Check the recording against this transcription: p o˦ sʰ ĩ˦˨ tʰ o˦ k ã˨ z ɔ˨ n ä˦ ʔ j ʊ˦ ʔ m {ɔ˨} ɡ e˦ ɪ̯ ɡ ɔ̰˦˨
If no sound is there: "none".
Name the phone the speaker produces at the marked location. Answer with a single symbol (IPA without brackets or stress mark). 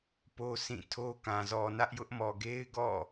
ɔ˨